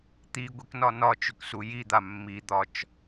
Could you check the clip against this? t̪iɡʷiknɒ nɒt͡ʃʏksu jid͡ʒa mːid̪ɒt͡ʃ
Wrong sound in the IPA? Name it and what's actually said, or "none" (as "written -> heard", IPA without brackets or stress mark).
d͡ʒ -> d̪